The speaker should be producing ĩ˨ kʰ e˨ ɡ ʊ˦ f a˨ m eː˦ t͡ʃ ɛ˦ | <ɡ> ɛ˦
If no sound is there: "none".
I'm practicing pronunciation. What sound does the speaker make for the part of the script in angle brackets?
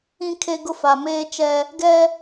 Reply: ɡ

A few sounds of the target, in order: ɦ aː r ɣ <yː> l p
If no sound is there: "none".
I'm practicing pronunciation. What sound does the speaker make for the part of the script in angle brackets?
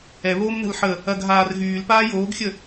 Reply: yː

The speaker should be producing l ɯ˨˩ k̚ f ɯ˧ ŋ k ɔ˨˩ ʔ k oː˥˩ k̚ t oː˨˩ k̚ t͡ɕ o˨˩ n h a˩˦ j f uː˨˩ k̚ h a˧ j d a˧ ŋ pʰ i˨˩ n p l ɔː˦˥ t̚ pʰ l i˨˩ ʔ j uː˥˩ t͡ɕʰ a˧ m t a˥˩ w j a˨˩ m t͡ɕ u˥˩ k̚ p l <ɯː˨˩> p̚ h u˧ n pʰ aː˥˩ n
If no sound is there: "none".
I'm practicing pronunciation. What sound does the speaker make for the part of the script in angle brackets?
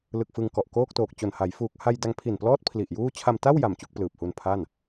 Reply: ɯː˨˩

